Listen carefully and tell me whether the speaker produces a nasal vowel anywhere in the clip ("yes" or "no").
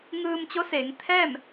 no